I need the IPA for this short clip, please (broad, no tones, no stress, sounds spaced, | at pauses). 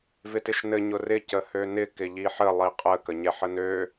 v ɪ t ɪ ʃ n ɘ ɲ ʊ r ɪ c ə h ø n ɪ k ɪ ʎ i ħ ə lˠ i qʼ ə k ə ɲ ɛ ħ ə n ø